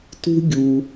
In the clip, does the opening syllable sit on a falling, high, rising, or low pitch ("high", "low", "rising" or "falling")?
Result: high